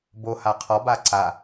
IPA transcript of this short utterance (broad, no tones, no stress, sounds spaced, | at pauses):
b o h a qʰ ɔ b a ǀ a